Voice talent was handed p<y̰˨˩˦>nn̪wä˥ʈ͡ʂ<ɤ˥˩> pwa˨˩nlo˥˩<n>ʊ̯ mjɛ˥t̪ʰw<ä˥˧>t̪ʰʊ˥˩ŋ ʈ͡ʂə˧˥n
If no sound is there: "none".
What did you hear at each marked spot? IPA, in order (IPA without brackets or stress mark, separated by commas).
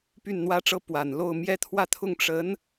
y˥˩, ɤ˥˩, none, ä˥˧